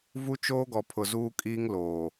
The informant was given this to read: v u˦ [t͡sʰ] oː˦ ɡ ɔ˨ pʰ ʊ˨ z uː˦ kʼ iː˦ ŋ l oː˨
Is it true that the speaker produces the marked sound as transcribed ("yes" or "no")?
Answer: no